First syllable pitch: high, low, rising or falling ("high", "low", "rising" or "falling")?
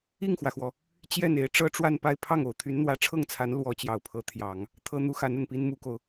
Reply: falling